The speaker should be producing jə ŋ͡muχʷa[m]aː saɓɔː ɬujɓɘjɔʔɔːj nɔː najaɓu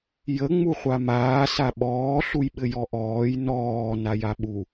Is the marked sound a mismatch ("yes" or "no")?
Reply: no